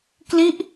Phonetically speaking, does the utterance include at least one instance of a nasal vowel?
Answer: no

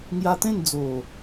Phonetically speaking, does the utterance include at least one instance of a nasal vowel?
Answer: yes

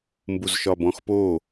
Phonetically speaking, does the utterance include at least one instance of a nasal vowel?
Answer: yes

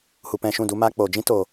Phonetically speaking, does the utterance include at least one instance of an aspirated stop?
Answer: no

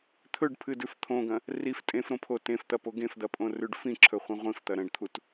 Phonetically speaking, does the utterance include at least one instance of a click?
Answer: yes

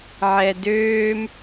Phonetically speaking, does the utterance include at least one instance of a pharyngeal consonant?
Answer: yes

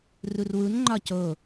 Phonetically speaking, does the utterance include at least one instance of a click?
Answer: yes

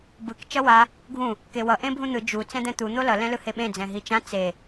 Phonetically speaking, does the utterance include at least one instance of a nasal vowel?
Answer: yes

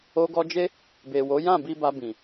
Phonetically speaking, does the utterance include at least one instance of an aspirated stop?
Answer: no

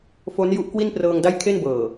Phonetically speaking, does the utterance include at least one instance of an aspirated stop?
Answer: yes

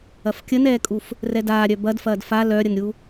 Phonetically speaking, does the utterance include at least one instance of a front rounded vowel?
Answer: yes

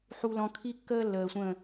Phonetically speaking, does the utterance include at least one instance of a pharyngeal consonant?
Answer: yes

